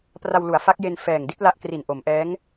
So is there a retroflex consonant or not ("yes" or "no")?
no